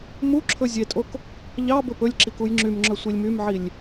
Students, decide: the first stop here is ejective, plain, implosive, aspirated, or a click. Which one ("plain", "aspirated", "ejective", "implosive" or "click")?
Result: click